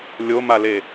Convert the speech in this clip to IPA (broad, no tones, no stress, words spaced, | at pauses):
lʲomale